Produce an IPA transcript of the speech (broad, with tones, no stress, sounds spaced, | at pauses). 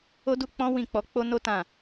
o˦ d u˦ k͡p ɔ̃˦ w ĩ˦˨ k͡p ɔ˧ k͡p o˦ n o˦ t ã˦˨